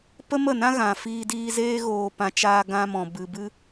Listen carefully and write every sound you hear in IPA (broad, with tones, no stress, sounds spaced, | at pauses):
p ə˦ m ə˦˨ n ã˦ ɣ ã˨ f iː˧ d iː˧ z eː˦ ɣ oː˧ p ã˧ t͡ʃ aː˧ ɡ ã˧ m ɔ̃˨ b ɨ˨ b ɨ˧